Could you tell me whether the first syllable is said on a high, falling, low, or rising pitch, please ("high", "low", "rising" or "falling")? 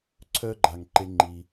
high